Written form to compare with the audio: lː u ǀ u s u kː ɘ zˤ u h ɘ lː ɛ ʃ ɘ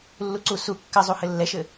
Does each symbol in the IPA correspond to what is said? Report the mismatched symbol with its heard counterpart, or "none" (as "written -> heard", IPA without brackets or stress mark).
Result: none